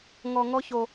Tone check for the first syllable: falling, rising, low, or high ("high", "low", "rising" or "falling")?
high